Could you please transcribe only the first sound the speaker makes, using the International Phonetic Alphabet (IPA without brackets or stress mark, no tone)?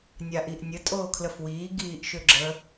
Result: nʲ